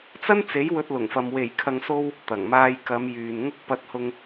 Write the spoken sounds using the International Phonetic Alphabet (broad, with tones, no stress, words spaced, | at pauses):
t͡sɐ˥nt͡se˨˥j wɵ˧t̚lʊ˨˩ŋfɐ˨m we˨˩jkʰɐ˨ŋso˧w | t̪ɐ˨˩ŋmaː˧jkɐ˨˧mjyː˨n ŋʊ˧k̚pɐ˨˥t̚hʊ˧ŋ